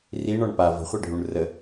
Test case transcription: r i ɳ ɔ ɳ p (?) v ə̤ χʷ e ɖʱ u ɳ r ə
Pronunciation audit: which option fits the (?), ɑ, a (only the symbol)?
a